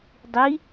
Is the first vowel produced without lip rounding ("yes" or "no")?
yes